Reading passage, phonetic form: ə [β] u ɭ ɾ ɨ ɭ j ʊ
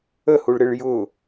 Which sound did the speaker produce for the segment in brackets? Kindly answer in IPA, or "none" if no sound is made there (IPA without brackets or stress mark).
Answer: h